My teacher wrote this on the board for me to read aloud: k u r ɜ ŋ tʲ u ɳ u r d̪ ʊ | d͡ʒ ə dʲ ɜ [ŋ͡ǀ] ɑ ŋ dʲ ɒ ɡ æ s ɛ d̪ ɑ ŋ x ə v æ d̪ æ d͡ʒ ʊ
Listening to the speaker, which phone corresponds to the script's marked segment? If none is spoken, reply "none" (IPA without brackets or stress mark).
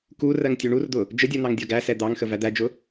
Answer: n̪